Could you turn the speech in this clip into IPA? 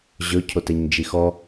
ʑ ɵ cʰ o t ɛ ɲ d͡ʒ i x ɔ

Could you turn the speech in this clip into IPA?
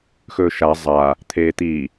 x ɵː ʃ a zˤ a | t̪ʰ eː t̪ i

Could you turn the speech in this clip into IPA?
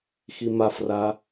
x i m a f r a

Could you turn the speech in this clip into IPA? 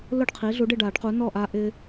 l ʊ˥˨ ɖ qʰ i˩˥ ɮ u˩˥ ɖ ɪ˥˨ ɖ a˨˩˦ ɖ q u˩˥ n ɔ˥˨ ʔ a˦ ʔ ɪ˦

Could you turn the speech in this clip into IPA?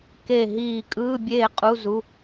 k e˥˨ ɦ iː˥˨ kʼ ɯː˧˥˧ bʲ eː˥˨ qʼ u˧˥˧ z u˧˥˧

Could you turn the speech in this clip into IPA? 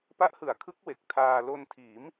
p a˦˥ ʔ h ɯ˩˦ a̯ kʰ ɯ˦˥ k̚ w e˨˩ k̚ tʰ aː˧ l o˧ n tʰ iː˩˦ m

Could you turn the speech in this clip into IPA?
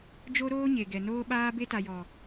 d͡ʒ o˦ ɾ oː˦ ɲ e˨ ɡ ɛ˨ n oː˦ ɓ aː˦ b e˦ t a˨ j ɔ˨

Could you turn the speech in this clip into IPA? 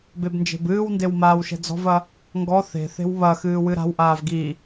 b e b n d͡ʒ e̤ b ɨː w n d e w m aː w ʃ ɛ̤ d͡z ɔ̤ v ɐ | ŋ ɡ ɔ θ e̤ θ e̤ w β ɐ x ɨː w ɨ ɾ a̤ w ʔ aː v ɡ i

